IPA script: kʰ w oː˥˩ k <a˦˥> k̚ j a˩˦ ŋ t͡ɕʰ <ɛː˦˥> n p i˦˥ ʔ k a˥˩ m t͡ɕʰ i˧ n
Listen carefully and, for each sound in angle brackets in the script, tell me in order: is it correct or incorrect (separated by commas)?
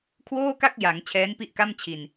incorrect, correct